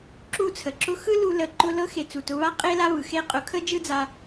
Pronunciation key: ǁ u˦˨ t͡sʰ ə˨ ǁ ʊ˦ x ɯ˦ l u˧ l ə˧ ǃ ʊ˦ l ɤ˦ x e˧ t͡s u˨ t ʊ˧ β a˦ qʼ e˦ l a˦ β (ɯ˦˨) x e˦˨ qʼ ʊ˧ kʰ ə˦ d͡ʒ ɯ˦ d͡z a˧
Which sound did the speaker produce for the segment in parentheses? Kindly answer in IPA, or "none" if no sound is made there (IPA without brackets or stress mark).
ɯ˨